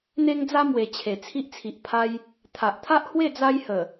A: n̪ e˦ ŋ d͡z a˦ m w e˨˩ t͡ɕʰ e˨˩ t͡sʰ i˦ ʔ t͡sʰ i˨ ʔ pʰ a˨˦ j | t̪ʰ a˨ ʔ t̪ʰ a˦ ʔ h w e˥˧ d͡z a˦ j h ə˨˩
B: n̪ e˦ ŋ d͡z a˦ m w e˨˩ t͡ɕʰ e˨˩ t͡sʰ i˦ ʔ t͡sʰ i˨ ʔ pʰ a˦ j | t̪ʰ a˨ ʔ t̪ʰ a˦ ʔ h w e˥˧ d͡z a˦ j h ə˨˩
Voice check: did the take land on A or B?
B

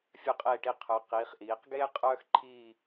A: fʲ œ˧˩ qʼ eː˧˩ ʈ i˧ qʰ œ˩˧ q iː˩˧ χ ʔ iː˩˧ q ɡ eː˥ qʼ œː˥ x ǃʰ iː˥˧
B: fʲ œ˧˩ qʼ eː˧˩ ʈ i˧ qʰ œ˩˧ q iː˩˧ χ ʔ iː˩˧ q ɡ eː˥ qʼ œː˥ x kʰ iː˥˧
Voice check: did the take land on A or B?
A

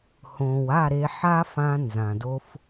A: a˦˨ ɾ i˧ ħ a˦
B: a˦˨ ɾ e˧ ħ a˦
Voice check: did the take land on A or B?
B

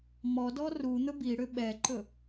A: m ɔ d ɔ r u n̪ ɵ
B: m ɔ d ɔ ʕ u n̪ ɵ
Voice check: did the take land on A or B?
A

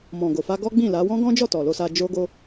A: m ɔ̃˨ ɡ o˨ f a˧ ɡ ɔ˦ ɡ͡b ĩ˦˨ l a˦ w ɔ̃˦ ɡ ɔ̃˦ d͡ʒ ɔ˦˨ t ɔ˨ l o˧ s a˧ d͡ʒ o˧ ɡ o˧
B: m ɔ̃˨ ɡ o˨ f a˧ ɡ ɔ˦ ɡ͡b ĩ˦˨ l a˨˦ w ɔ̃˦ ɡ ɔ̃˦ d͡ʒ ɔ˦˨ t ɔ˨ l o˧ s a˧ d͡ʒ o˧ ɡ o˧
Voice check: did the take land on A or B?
B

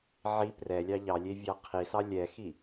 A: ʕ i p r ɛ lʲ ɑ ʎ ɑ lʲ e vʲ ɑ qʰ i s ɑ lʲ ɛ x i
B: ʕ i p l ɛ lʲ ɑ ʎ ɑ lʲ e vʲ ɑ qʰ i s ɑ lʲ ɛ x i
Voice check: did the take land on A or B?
A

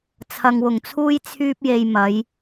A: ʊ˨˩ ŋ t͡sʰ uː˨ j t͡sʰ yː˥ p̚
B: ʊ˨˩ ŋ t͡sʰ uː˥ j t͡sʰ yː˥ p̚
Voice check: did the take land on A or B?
B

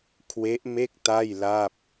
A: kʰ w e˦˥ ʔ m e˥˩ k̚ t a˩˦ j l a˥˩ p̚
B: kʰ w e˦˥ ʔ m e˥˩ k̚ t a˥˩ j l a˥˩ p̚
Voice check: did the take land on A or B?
B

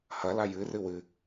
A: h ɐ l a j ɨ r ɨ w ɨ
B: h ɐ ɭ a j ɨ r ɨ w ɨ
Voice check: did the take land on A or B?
A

